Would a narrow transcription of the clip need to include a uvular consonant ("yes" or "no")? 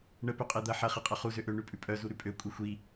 yes